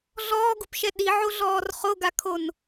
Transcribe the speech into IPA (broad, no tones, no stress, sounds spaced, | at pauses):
ɮ ɔː ɡ u p ʃ ɛ ɗ i ʕ o ɮ ɔː r χ o ɡ a kʰ o n